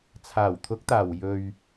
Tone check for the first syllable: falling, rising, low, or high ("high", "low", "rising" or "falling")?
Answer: low